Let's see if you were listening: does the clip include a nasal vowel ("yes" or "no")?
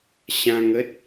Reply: yes